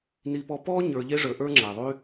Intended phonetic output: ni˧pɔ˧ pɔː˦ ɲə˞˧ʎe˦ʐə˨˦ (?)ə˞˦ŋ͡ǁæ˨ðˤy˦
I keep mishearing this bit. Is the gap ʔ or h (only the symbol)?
ʔ